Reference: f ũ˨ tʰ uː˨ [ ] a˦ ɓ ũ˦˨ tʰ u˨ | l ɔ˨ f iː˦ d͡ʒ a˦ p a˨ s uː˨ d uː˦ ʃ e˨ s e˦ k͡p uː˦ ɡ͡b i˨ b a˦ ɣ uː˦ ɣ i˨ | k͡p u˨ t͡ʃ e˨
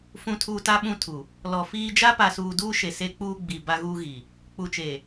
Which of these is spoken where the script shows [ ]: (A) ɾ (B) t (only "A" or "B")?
B